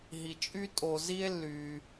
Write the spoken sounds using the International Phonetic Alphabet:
ɦ i˩ t͡ʃʼ y˥ tʼ o˩ z i˥ e̯ lː y˩

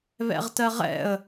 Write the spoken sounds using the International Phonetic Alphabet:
β ɛ̰ ʁ t ɜ ʁ ɛ̰ ə̯

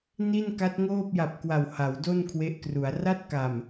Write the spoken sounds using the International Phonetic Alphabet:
n i˥˩ n k a˦˥ t̚ ŋ oː˥˩ p̚ j a˨˩ p̚ k w a˨˩ w h a˩˦ w d o˥˩ n kʰ w e˦˥ ʔ k r u˩˦ a̯ r a˥˩ t̚ k a˨˩ m

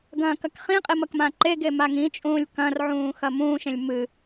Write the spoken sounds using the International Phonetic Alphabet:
ɡ ɐ̃ː k ɐ k χ ĩ qʼ i m ɐ k m ã ǃ e ɡ e m a ŋ ĩ t͡ʃʼ ũː lʲ k ɐ̃ r ʕ ũː x ɐ m ũː ʃ ẽ lʲ m ɨ

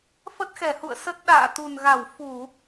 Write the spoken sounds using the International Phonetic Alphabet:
f ə˦˥ t̚ x ɛ˧˩ h ṵ˧˨ ə̯ s ə˦˥ t̚ ɗ a̰ː˧˨ t̪ u˨˩ n ɣ a˧˩ w f u˧˩˨

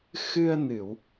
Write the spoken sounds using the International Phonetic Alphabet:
x ɨ˧ ə̯ n ɨ˨˩˨ w

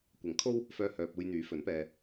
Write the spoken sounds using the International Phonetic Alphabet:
kʷ ɐ˨˥ ŋ kʰ o˥ w | f œː˧ h œː˨ p̚ uː˧ j n̪ yː˨˥ f ɵ˨˥ n p ɛː˧

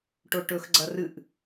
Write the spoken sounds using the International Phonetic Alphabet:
ʈ o ʈ ɵ x ɡ͡ǀ ɐ r ɨ ʔ

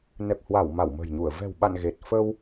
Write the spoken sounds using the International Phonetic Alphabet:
n ɛ˨˩ p̚ h w a˧˩ w m a˧˩ w m ə̤˨˩ j ɲ u˧˩ ə̯ v ɛ̤˨˩ w ɓ a̰˧˨ n ɣ e˨˩ t̚ f ə˧ w

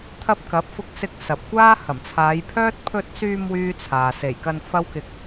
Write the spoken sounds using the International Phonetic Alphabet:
t̪ʰ ɐ˧ p̚ k ɐ˨˥ p̚ f ʊ˧ k̚ s ɪ˧ k̚ s ɐ˨ p̚ kʷ aː˥ h ɐ˨˩ m t͡sʰ aː˨˧ j pʰ œː˥ t̚ pʰ ɵ˧ t̚ s yː˧ m w yː˥ t͡sʰ aː˨ s e˨˩ j k ɐ˧ n f ɐ˥ w k ɪ˧ k̚

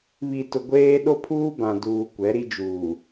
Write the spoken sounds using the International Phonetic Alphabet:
β i˨ t ʊ˨ ɡʷ eː˦ ɗ o˦ pʰ uː˦ b ã˨ d uː˨ kʷ ɛ˨˦ ɾ i˦ d͡ʒ uː˨

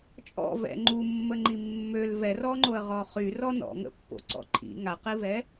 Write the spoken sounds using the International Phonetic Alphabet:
t͡ʃʼ ɔ̰ v ɛ̰ ŋ͡ǃ u mː ə ŋ͡ǃ i mː ø l v ɛ r ɔ ŋ͡ǃ o ə̯ ʁ ɔ χ y r ɔ n ɔ̰ ŋ ə̰ pː o̰ ǀ ɔ̰ ǃʰ ḭ ŋ a q i v ɛ

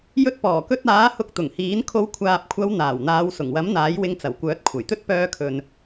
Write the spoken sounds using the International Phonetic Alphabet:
j ɵ˧ t̚ p ɔː˨˩ k ɵ˧ t̚ aː˨˥ h ʊ˧ k̚ t̪ ʊ˨˩ ŋ h iː˨˥ n kʰ o˨˧ w kʷʰ aː˨ p̚ kʷʰ ɐ˨˧ w n̪ aː˨˩ w n̪ aː˨˧ w s ʊ˨˩ ŋ w ɐ˨˥ m n̪ aː˨˥ j w ɪ˧ ŋ t͡s ɐ˨˩ w kʷ œː˨˥ t̚ kʷʰ ɐ˨˩ j t̪ ɵ˥ t̚ p œː˧ kʰ ɵ˨ n

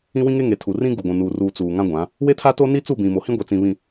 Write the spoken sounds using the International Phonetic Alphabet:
ĩ˦ w ĩ˦ ŋ e˦ ŋ e˨ tʰ u˨ r ĩ˦ ɡ u˨ ɡʷ ũ˨ n uː˨ r uː˨ t͡s uː˨ ŋ ã˦ ɡʷ ã˨˦ | w e˦ tʰ a˦ t o˦ n i˦ t͡s u˦˨ b ĩ˨ m o˨ h ĩ˦ ɡʷ e˨ t͡s ĩ˨ β ĩ˨

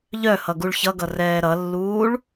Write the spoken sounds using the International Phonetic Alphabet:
ʎ œ h ʌ ɡ u ɭ ç ʌ ɡ ʌ r ɛː ɾ ʌ lː uː ɭ

